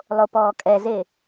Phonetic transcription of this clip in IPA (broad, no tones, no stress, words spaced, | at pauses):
lˠopɔːkʼɛze